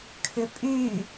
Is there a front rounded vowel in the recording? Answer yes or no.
yes